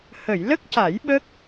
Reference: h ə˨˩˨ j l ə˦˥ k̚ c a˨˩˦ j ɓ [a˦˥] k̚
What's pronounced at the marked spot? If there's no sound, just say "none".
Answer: ə˦˥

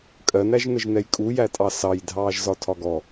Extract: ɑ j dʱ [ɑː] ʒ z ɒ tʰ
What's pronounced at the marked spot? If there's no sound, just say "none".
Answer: ɑː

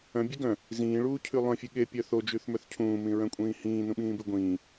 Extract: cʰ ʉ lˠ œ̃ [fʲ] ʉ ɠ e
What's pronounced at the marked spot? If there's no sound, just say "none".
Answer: fʲ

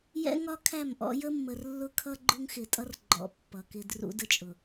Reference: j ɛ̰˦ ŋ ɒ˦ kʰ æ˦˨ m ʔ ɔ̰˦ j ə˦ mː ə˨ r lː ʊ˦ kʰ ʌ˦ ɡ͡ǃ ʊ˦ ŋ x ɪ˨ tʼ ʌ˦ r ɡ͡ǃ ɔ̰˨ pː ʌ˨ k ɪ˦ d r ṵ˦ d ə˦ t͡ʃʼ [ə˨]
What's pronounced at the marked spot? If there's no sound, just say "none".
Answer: ʊ˨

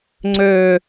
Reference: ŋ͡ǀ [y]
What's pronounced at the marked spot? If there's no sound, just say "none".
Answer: ø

